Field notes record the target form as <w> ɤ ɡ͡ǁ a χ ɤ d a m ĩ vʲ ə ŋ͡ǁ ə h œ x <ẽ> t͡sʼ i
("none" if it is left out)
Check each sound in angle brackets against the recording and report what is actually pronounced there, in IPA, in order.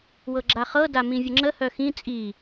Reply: w, ĩ

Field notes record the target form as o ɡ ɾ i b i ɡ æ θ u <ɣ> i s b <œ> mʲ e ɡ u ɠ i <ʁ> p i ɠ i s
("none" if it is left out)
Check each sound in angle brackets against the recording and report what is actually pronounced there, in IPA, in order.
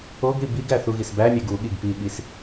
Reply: ɣ, æ, ɡ

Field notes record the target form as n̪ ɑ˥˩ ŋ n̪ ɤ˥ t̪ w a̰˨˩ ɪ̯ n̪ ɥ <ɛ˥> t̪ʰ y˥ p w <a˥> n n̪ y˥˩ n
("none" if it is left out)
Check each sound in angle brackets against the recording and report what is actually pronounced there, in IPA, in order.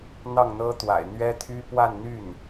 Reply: ɛ˥, a˥˧

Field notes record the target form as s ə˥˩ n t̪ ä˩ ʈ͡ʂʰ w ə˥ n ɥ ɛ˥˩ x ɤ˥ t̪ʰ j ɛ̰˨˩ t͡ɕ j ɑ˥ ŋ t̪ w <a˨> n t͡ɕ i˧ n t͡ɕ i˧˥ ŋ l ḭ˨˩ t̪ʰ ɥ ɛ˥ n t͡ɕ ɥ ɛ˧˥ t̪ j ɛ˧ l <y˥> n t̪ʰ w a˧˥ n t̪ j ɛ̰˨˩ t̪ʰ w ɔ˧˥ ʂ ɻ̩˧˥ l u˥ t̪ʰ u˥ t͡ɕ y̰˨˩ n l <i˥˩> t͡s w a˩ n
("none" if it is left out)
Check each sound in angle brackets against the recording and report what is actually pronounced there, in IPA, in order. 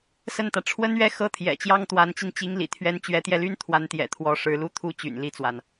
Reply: a˧˥, y˥, i˥˩

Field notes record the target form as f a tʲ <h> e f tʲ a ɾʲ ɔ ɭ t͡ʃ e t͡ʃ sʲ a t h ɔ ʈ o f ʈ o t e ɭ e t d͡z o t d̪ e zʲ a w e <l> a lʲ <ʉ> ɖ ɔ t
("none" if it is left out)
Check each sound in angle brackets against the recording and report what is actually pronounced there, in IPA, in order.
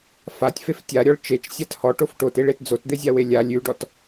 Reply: f, lʲ, ʉ

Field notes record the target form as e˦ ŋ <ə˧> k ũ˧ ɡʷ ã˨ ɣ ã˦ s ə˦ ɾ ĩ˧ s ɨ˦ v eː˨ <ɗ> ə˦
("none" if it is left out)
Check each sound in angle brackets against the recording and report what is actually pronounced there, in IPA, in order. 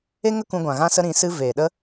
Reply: ə˦, ɗ

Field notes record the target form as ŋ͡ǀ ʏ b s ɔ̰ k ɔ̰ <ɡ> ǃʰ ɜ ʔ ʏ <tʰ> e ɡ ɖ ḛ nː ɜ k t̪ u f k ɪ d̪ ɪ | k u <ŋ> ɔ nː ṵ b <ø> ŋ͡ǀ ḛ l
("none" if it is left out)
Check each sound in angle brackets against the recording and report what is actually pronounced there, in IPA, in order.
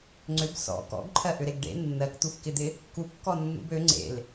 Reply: ɡ, ɾ, kː, ø

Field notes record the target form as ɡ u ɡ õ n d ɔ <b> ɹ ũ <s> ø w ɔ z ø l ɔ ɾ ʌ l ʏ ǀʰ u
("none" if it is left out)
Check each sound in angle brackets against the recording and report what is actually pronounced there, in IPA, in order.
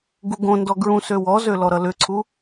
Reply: ɡ, s

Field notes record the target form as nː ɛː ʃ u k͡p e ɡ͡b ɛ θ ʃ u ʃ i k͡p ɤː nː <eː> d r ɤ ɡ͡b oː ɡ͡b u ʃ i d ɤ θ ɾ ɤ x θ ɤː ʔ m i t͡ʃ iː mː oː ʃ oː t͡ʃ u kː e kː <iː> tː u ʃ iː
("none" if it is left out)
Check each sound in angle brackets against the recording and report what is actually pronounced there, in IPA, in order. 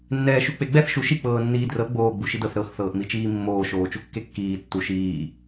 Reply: iː, iː

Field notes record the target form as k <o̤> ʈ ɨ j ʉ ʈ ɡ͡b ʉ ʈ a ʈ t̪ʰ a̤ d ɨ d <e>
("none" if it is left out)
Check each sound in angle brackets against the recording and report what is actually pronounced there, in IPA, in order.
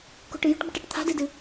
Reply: o̤, ɨ

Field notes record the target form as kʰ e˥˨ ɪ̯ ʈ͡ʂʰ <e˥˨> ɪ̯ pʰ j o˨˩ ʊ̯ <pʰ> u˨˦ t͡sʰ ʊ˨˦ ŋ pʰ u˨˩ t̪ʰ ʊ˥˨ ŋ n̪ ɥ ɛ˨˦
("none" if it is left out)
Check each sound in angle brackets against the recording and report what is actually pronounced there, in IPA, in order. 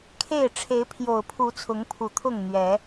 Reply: e˨˦, pʰ

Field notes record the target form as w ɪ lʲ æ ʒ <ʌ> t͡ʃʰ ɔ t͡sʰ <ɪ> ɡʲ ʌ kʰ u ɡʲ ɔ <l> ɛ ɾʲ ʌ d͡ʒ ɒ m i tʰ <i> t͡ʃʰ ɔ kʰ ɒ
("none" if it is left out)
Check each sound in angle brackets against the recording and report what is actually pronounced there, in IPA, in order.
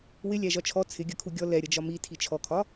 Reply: ɒ, ɪ, l, i

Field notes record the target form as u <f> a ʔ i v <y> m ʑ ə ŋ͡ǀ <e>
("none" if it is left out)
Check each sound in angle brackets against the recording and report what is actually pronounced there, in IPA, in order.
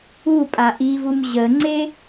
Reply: pʼ, u, e

